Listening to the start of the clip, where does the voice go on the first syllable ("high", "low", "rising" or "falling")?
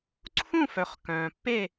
falling